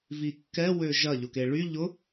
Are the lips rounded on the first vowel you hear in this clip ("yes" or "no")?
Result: no